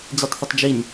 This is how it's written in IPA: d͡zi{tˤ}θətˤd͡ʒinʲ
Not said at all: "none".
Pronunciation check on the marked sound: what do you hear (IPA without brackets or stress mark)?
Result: tˤ